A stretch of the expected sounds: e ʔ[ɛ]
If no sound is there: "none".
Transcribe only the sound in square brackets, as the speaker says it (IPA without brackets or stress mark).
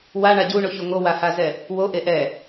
ɛ